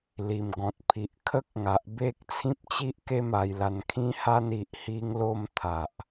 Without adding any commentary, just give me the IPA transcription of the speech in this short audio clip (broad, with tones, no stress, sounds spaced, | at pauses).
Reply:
l i˨˩ m ɡ ɔ̃˨ t̚ pʰ i˨ ʔ kʰ ə˦ k̚ ŋ a˨ ʔ b e˦ k̚ t͡sʰ ĩ˦ p̚ t͡ɕ i˦ ʔ k e˦ m a˧ j l a˧ n kʰ ĩ˦ h a˦ n i˨ ʔ h i˧ ŋ l o˧ m t̪ʰ a˨ ʔ